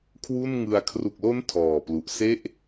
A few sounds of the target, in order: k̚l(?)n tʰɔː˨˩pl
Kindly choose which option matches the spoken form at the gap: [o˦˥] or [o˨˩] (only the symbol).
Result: o˦˥